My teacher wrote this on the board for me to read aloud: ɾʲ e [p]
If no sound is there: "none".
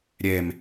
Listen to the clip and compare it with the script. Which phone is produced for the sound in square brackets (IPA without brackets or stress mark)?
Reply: m